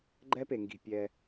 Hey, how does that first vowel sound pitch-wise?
high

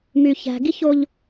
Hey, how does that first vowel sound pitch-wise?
low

